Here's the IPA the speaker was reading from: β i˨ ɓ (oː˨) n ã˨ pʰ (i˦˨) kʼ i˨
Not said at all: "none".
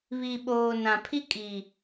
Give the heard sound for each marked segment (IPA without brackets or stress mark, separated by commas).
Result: oː˨, i˦